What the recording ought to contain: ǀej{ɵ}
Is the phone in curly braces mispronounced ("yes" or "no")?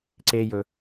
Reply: no